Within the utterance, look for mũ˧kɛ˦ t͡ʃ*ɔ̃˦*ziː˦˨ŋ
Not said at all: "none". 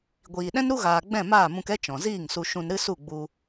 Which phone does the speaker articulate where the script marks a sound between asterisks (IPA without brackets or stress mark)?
ɔ̃˨